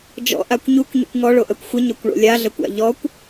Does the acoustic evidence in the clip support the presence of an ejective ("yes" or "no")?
no